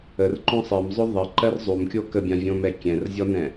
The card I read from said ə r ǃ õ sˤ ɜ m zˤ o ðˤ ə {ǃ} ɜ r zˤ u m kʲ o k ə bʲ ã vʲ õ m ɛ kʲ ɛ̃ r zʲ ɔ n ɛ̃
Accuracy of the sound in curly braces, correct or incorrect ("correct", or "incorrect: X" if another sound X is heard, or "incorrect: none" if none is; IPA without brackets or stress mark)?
correct